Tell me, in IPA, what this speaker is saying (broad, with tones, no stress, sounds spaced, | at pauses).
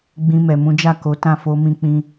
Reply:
ɡ͡b ĩ˧ m ɛ˨ m ũ˨˦ d͡ʒ a˦˨ k o˨˦ t ã˦˨ f o˧ m ĩ˧ k͡p ĩ˧